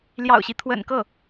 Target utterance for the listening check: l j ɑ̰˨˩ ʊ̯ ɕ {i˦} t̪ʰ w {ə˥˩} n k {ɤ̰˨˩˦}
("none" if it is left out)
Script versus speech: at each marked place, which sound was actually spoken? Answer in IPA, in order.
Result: i˦, ə̰˨˩, ɤ˥˩

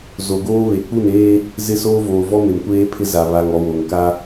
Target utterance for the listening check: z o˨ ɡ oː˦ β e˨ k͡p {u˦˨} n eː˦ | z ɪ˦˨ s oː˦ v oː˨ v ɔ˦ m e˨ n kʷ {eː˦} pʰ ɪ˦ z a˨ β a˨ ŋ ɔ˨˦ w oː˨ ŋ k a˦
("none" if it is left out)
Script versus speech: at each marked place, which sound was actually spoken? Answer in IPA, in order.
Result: u˦˨, eː˦

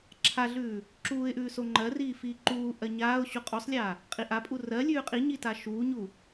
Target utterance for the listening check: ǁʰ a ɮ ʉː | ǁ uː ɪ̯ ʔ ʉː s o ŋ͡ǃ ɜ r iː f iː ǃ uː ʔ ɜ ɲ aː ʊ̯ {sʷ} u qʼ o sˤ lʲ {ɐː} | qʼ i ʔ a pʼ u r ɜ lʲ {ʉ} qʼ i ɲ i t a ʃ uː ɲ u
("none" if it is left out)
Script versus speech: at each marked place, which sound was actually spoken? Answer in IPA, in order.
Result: ɕ, aː, ʉː

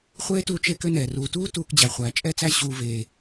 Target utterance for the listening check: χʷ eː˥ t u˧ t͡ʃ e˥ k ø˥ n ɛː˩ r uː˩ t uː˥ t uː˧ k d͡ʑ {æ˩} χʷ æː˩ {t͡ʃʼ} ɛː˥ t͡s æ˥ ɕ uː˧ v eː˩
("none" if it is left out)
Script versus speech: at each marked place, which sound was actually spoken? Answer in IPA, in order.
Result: æ˩, t͡ʃʼ

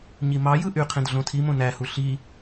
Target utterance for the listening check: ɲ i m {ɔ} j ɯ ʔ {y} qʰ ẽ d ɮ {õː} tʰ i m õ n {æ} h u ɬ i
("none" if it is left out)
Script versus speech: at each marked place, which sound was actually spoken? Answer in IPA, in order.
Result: ɑ, y, õ, æ

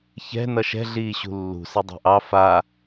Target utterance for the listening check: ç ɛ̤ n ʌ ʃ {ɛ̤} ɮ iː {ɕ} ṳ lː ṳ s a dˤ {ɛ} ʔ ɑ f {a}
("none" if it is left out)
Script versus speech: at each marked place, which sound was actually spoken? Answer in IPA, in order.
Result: ɛ̤, ɕ, ɛ̤, a

